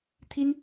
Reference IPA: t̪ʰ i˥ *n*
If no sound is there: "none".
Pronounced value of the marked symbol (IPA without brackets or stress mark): n